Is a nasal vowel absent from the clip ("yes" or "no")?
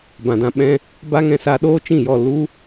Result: no